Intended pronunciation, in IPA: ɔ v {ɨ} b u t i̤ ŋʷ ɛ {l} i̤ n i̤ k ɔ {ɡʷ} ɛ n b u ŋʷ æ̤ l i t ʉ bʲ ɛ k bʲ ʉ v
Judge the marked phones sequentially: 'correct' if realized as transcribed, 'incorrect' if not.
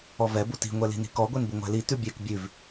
incorrect: ɛ, correct, correct

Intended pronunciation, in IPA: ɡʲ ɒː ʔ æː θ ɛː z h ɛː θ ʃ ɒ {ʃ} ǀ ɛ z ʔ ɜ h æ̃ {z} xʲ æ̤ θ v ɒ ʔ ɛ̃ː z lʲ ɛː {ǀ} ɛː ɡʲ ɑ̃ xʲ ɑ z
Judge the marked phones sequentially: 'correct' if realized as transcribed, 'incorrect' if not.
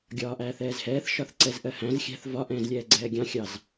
incorrect: θ, correct, incorrect: ɡ͡ǀ

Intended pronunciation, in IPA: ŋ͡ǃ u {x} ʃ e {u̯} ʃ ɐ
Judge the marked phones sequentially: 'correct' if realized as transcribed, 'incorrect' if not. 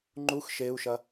correct, correct

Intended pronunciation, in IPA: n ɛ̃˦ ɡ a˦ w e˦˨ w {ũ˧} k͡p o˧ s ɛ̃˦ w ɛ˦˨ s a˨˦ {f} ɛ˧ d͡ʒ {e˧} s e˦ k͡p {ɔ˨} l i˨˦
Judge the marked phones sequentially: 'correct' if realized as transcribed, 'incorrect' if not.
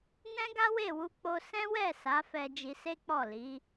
incorrect: u˧, correct, incorrect: i˧, incorrect: ɔ˦˨

